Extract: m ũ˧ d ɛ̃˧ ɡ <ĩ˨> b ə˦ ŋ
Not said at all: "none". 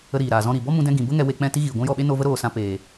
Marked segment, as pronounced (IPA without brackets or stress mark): ĩ˨